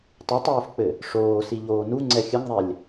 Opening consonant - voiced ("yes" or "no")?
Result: no